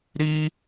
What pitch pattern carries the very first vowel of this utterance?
high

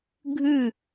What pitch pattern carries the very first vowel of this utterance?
falling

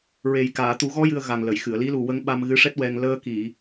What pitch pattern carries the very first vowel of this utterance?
low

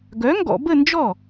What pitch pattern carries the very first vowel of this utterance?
rising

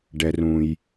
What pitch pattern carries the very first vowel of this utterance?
high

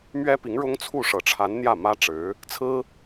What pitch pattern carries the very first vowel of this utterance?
high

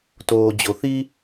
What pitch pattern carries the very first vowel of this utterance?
low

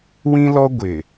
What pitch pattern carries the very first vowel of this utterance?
high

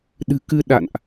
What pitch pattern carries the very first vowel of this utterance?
low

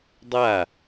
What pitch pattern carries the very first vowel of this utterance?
falling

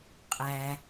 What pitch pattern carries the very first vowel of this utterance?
low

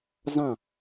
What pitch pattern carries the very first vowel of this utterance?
falling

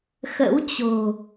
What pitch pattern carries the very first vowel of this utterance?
rising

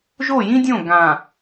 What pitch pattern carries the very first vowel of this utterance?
falling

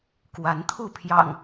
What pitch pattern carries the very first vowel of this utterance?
rising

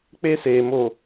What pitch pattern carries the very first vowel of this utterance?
high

